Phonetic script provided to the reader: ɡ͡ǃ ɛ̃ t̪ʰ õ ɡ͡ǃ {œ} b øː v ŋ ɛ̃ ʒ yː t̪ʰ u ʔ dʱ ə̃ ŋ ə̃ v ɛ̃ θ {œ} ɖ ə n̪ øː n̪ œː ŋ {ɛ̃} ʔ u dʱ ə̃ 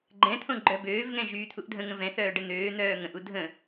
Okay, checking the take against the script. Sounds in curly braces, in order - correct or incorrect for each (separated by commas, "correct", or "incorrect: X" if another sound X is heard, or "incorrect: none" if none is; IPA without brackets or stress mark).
correct, incorrect: œː, incorrect: ə̃